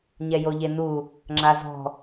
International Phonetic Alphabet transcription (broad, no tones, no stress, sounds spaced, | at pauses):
ɲ ɛ j o ʎ e n u | ŋ͡ǁ a z ɔ̤